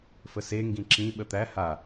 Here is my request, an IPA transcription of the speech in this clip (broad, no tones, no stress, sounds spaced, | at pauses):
f ə s e ŋ ɡ ĩ ǁ ĩ ɓ ə t̪ æ h a